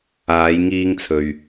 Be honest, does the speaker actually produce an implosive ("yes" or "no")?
no